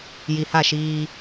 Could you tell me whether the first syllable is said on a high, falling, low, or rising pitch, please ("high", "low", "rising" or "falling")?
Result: low